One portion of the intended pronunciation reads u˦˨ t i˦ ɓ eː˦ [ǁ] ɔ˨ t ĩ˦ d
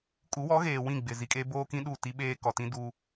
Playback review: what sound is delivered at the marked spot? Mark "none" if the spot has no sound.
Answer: k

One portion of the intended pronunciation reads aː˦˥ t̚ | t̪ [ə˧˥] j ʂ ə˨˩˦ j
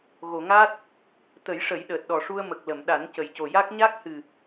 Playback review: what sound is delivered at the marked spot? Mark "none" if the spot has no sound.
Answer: ə˨˩˦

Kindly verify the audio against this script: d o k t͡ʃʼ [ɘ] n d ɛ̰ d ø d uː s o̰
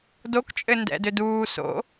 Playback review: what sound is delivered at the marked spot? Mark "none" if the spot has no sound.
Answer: ɘ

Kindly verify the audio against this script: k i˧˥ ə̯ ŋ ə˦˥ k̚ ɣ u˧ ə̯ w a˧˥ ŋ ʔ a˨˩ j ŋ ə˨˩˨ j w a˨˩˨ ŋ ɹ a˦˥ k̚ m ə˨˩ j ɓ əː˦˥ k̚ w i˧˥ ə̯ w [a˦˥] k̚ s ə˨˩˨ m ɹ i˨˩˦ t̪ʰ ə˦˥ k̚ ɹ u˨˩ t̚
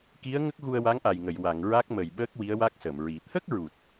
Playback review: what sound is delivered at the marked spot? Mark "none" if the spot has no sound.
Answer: a˦˥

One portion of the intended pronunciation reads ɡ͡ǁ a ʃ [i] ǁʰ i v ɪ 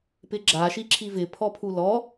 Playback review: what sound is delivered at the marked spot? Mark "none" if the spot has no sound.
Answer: i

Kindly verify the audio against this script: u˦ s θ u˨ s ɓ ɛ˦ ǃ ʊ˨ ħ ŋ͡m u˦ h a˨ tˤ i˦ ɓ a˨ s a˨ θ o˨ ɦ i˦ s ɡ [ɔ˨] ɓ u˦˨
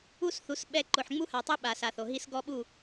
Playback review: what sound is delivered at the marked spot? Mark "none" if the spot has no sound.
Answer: ɔ˦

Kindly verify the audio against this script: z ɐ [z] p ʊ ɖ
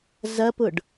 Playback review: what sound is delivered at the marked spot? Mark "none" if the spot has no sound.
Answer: none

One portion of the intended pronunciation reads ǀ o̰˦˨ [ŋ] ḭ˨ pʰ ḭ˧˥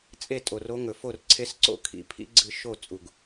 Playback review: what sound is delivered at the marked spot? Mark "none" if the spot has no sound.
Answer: kʰ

